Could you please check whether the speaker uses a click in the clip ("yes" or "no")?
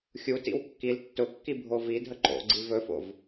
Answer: yes